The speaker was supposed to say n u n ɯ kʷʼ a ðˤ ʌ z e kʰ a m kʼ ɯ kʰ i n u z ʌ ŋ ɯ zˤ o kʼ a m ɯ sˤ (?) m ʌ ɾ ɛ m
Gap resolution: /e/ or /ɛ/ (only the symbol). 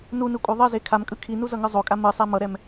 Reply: ɛ